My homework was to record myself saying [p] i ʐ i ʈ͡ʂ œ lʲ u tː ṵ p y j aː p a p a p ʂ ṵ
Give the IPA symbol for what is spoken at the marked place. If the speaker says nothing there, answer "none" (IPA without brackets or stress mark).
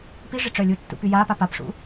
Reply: p